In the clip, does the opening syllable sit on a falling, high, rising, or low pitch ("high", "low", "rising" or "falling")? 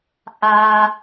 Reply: low